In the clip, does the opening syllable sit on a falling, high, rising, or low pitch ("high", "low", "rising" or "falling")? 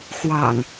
low